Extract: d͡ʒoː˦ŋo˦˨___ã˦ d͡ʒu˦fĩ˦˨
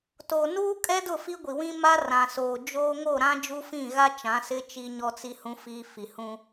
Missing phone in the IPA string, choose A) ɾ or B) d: A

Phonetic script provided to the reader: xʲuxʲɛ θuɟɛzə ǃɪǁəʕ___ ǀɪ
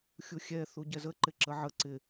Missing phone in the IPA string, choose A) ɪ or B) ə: B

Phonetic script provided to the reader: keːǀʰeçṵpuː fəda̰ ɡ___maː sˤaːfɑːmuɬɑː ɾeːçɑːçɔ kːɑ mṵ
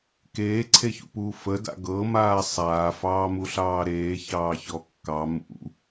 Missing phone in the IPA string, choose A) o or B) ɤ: B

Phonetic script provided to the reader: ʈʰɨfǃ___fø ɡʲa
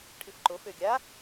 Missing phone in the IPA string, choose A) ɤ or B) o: B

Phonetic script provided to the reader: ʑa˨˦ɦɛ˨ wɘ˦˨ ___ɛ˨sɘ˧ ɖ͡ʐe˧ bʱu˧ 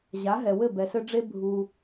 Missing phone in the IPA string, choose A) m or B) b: B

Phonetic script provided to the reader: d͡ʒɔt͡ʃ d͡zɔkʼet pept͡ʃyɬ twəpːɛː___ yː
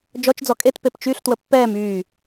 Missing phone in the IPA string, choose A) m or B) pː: A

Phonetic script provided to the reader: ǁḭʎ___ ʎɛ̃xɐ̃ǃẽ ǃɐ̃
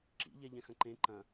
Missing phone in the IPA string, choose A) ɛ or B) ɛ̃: A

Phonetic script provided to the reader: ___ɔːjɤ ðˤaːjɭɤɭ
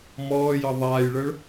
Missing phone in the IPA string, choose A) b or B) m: B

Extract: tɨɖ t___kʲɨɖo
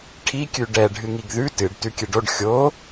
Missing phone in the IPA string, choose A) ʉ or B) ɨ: A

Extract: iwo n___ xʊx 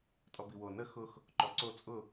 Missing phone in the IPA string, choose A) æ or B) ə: B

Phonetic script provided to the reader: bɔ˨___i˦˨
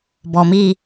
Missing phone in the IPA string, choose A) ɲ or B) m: B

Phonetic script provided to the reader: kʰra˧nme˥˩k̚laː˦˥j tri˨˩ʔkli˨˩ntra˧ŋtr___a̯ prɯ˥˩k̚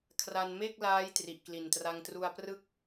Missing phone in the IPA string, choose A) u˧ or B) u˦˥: A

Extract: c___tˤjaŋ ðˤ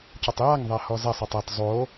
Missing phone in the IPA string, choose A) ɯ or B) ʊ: B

